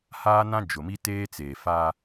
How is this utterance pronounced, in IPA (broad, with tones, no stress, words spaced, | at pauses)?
haː˦nã˦d͡ʒʊ˨mi˦ teː˦t͡seː˨fa˦